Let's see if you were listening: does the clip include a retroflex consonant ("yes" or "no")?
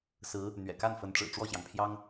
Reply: yes